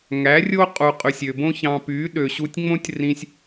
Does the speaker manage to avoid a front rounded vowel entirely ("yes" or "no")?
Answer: no